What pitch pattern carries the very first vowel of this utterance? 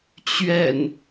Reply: low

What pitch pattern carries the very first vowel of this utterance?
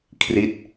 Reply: falling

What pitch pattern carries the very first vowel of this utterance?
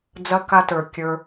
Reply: high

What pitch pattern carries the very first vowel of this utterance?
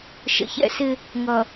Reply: low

